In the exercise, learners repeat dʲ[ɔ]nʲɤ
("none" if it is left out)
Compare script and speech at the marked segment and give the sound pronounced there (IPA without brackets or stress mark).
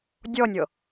ɔ